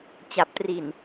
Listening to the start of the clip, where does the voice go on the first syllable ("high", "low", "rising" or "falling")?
low